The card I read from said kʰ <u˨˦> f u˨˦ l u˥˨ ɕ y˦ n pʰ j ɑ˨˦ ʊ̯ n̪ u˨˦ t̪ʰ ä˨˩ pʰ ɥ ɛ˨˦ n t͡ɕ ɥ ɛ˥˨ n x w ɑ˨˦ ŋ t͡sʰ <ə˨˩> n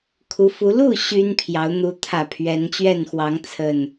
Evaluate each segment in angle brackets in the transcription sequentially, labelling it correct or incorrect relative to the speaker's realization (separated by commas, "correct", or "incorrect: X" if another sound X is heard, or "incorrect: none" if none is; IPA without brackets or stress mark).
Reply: correct, correct